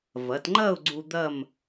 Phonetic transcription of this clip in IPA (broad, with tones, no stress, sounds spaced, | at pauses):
v ɐ˩˧ t ŋ͡ǃ ɐ˥˧ ʊ̯ ɡ͡ǀ u˧ d̪ ɐ˥˧ m